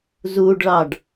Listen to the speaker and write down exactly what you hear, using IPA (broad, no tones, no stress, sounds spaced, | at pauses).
z u ɖ ɭ ɑ ɖ